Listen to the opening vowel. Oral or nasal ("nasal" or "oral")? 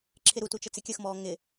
oral